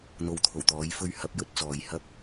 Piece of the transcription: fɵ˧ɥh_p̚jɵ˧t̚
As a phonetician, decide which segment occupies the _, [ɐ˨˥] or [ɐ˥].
ɐ˨˥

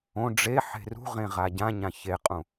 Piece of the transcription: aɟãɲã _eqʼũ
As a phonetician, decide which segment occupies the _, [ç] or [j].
ç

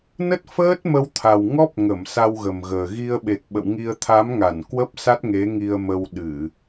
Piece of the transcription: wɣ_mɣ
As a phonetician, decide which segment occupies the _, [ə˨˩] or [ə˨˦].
ə˨˩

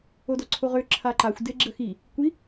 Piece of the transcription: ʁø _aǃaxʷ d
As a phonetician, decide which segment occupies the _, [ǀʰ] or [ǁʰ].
ǁʰ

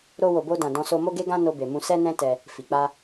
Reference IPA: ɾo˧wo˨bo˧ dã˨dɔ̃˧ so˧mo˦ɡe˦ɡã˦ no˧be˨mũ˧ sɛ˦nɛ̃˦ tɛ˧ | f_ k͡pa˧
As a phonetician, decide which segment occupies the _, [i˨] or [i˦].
i˨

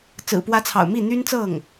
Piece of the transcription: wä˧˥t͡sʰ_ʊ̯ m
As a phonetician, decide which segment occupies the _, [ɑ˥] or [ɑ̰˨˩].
ɑ̰˨˩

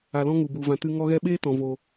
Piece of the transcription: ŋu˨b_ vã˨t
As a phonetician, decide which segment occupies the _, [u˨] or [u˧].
u˨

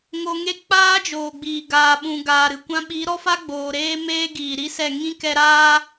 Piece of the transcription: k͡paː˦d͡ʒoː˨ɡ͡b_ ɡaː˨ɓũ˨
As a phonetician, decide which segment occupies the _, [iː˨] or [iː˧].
iː˨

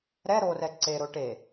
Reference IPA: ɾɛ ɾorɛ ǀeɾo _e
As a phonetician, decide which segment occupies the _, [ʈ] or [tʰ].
ʈ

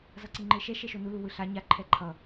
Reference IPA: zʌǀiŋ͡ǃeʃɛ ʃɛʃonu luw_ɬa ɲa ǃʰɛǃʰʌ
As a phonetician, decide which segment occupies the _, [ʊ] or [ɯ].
ɯ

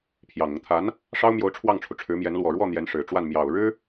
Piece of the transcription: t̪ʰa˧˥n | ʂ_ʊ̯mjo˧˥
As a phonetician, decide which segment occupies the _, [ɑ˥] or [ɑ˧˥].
ɑ˥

